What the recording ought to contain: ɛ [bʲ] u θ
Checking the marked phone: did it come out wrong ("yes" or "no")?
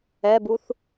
yes